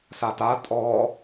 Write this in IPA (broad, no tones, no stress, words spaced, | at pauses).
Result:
sata tʼɔ